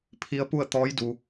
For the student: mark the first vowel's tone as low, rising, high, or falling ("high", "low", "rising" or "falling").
rising